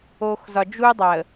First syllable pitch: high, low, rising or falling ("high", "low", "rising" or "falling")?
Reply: low